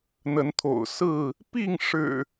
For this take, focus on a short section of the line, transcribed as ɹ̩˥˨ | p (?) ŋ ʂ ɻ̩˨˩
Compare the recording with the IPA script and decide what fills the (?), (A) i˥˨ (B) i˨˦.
A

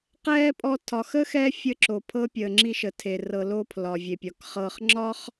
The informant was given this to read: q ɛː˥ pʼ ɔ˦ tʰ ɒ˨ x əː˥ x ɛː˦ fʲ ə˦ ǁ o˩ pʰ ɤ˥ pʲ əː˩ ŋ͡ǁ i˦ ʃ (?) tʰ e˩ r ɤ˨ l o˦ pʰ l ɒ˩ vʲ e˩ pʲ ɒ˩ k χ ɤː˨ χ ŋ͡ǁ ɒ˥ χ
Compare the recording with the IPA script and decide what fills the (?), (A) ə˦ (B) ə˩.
B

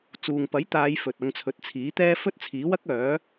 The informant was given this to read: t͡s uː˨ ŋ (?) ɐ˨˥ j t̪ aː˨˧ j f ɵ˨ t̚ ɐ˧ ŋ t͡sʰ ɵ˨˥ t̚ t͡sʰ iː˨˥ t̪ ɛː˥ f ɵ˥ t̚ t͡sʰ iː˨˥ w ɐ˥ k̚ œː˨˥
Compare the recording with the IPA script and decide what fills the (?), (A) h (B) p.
B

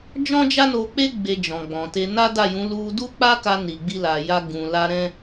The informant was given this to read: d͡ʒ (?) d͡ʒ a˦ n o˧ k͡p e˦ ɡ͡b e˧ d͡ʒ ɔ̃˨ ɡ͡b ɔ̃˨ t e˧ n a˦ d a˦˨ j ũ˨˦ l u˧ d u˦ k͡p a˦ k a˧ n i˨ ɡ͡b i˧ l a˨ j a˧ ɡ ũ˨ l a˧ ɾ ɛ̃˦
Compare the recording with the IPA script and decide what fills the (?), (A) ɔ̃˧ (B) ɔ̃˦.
B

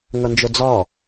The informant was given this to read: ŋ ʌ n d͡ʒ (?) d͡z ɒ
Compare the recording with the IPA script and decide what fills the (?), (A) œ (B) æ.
A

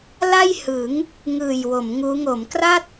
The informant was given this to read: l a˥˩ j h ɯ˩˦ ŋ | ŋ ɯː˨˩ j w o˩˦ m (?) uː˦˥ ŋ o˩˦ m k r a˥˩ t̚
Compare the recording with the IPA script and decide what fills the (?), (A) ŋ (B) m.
A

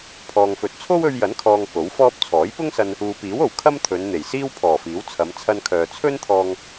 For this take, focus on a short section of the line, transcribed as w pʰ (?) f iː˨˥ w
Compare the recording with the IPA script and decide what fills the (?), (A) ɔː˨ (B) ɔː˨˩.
B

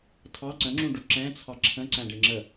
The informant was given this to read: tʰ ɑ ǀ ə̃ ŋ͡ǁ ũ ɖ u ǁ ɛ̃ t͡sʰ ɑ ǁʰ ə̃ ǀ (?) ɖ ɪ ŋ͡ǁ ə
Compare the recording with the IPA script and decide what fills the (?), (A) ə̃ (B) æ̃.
B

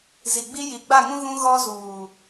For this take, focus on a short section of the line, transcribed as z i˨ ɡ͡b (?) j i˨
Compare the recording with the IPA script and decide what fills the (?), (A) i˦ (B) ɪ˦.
A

